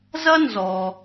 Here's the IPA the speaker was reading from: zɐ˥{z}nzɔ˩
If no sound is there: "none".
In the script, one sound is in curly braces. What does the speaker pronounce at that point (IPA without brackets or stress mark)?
none